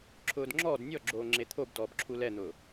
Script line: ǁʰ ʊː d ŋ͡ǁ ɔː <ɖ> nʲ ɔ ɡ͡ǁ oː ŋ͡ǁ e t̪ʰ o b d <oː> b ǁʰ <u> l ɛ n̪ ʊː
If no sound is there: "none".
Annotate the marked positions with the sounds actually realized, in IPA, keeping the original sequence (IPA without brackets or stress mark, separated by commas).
d, ɔː, u